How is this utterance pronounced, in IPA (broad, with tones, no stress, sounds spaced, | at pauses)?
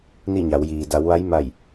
n i˥˨ ɲ a˩˧ w j iː˩ d a˩˧ w ʋ a˧˥ j m a˧˩ j